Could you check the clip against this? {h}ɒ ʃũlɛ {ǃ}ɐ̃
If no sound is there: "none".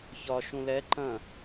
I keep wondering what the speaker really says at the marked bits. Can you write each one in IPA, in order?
ç, ǃ

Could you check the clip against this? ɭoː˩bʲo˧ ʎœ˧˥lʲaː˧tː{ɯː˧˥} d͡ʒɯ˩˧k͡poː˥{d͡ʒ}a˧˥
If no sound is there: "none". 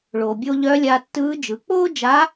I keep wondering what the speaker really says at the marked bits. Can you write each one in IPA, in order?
ɯː˧˥, d͡ʒ

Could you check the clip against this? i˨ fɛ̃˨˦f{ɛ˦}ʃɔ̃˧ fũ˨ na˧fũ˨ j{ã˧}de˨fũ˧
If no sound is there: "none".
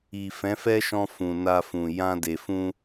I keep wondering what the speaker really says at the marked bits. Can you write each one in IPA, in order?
ɛ˦, ã˧

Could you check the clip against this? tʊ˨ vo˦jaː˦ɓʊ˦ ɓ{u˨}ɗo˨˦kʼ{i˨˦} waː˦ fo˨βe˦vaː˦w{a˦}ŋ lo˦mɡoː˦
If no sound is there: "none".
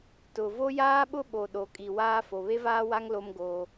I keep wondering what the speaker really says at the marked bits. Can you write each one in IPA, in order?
o˨, i˨, a˦

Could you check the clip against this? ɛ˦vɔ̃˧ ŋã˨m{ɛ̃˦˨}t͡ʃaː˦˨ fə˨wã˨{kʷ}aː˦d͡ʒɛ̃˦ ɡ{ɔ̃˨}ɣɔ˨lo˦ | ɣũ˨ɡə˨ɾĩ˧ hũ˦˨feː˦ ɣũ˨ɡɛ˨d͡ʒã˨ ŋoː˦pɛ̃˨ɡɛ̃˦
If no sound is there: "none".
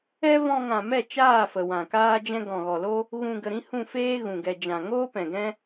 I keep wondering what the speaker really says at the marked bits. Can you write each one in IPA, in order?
ɛ˦˨, k, ɔ̃˨

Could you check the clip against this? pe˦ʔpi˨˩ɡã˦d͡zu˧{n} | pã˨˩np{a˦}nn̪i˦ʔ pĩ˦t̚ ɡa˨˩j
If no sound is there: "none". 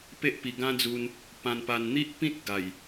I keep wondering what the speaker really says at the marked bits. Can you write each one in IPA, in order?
n, a˨˩

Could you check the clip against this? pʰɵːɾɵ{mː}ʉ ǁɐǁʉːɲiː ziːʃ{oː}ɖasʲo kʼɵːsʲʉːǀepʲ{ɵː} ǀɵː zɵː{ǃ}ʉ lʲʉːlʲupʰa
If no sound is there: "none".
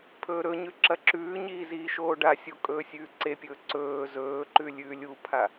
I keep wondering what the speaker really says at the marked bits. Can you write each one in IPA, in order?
ɲ, oː, ɵː, ǃ

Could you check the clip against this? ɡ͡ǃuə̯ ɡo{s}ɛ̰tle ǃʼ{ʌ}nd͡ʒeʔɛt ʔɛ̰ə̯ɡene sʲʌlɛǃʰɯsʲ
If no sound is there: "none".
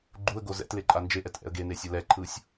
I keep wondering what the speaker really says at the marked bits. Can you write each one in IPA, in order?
z, a

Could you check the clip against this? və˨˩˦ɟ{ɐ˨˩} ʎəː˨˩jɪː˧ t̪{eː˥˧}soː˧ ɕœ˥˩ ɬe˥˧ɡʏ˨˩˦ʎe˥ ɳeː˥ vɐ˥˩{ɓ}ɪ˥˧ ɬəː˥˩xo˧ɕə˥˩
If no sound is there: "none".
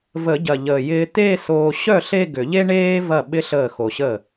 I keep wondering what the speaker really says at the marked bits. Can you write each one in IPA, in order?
ɐ˨˩, eː˥˧, ɓ

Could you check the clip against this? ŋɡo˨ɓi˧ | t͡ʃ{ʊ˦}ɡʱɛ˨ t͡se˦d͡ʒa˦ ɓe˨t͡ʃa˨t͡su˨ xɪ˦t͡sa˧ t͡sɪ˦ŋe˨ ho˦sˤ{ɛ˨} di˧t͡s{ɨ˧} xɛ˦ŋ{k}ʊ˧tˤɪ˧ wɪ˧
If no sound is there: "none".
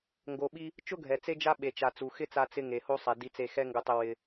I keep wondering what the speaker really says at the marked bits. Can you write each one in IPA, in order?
ʊ˦, ɛ˨, e˧, ɡ

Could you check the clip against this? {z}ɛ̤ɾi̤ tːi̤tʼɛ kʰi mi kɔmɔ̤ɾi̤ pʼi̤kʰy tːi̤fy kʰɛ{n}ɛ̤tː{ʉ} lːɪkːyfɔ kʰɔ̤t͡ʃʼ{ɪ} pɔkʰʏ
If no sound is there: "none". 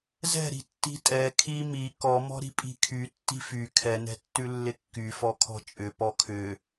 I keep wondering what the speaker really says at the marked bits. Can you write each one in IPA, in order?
z, n, ʉ, ʏ

